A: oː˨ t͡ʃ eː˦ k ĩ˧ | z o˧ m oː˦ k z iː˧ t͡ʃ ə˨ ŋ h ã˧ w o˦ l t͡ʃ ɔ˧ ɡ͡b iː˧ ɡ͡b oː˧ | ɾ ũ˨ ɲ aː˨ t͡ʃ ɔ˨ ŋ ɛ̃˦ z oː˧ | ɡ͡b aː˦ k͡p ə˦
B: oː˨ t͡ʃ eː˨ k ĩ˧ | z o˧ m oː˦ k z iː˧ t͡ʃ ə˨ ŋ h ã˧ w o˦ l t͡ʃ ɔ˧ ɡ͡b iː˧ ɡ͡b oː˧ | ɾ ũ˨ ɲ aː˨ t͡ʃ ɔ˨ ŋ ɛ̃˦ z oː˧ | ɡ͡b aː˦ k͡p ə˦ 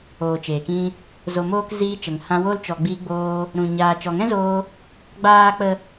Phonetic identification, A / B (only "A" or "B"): B